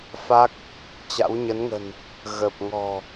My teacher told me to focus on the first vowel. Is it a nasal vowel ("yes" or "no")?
no